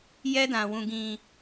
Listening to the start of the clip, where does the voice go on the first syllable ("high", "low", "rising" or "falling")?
high